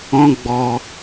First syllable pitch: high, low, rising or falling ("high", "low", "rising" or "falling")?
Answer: high